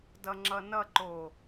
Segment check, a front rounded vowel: absent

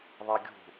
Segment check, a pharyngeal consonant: absent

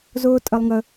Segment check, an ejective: present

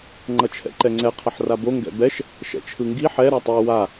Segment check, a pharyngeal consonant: present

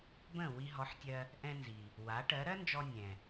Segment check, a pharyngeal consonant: present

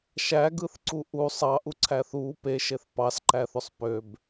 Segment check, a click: present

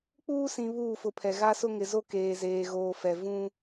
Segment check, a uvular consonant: absent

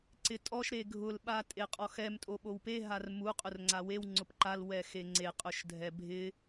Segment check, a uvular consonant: present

